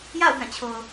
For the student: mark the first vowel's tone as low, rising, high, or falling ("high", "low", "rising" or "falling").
falling